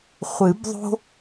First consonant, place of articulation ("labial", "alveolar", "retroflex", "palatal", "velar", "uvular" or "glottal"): uvular